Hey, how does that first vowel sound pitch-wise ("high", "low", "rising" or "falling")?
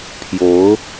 rising